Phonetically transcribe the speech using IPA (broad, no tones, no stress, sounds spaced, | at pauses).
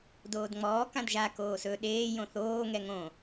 d oː d ŋ͡m ɔː k ã d ʒ a k oː s ɵ ɗ eː j õ θ oː ŋ ɛ ŋ õ